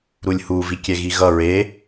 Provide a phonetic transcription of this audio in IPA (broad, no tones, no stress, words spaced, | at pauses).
ɾulʲhuvikʲɛ ɣiɣʌ ɹe